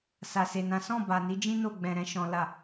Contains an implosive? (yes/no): no